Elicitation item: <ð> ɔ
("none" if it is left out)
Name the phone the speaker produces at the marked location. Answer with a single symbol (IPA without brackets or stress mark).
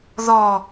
ð